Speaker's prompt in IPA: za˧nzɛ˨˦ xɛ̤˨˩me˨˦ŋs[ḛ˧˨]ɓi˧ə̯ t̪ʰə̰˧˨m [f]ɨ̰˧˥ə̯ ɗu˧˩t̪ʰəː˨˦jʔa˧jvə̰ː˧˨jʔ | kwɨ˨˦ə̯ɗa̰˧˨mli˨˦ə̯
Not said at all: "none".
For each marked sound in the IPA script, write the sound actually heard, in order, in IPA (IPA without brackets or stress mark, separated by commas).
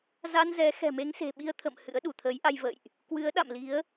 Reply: e̤˨˩, h